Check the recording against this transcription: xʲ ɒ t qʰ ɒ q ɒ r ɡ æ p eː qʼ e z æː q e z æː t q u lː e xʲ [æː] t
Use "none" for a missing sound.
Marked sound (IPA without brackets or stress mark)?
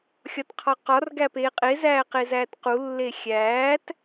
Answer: æː